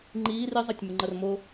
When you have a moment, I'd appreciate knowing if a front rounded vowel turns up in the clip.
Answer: no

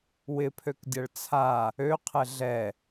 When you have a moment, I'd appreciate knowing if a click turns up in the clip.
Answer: no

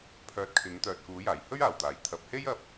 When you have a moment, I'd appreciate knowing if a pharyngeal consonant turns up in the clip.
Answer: no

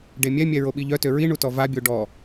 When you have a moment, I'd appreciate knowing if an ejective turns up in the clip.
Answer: no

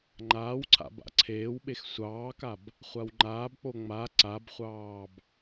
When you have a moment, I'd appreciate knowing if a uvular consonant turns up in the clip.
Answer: yes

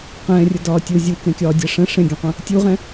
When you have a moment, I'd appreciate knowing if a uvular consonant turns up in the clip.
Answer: yes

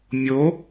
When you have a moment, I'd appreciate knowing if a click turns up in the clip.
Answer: no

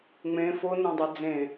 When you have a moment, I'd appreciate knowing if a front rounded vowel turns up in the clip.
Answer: no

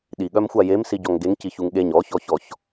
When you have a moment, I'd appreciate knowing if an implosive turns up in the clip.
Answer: yes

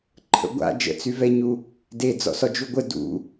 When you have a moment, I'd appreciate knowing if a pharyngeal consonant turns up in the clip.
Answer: no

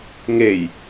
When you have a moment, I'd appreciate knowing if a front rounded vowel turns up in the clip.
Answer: no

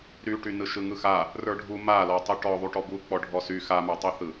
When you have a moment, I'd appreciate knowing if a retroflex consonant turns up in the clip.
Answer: yes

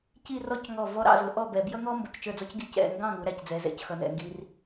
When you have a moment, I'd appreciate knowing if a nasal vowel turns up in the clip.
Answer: yes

